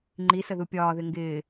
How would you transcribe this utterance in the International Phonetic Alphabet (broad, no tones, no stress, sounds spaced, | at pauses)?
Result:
ŋ͡ǃ i s ə ð u pʲ ɒː ð ɪ ŋ ɡ ɪː